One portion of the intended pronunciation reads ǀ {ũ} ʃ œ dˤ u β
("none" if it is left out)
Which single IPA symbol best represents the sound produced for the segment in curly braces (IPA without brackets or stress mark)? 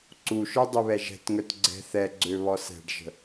u